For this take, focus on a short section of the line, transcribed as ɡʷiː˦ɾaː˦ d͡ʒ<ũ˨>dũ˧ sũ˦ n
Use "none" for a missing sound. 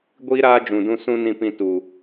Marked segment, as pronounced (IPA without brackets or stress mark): ũ˨